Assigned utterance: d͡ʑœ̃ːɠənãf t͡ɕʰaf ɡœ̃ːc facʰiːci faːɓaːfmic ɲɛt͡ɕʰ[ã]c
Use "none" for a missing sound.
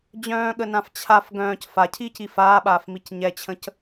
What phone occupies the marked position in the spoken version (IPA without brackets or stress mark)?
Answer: ə̃